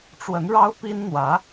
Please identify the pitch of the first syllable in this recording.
rising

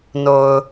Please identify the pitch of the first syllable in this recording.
low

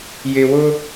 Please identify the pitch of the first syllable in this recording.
low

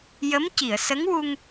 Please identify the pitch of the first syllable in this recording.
rising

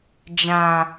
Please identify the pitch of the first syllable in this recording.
low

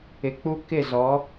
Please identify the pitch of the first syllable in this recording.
low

